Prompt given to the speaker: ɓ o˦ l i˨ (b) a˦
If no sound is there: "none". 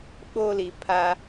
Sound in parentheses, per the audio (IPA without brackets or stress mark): pʰ